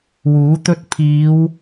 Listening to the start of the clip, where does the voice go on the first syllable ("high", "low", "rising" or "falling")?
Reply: rising